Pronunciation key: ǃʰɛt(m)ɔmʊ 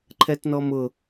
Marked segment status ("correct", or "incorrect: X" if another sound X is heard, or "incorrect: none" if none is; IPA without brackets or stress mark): incorrect: n